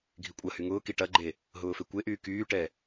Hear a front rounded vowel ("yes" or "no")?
yes